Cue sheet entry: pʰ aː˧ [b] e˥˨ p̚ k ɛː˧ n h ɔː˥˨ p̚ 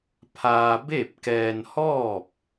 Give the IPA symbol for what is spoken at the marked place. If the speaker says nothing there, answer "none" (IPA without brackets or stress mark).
b